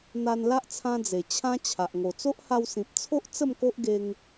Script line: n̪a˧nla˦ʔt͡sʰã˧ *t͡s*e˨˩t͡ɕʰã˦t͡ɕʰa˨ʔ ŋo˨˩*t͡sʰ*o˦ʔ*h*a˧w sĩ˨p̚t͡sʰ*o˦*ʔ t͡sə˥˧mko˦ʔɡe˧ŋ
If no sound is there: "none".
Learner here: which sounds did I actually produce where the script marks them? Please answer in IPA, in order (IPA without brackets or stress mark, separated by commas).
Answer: d͡z, t͡s, h, o˦